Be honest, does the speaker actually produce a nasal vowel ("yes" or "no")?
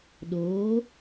no